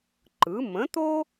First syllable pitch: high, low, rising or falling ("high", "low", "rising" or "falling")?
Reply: rising